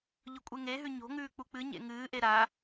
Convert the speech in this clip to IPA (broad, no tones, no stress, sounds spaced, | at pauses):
ʎ ɵ kʷʼ e ŋ e ɦ ʉ ɲ o̤ ŋ ʉː k͡p u k͡p ɨ ɲ ḛ ŋ ɨː ʔ e ɾ a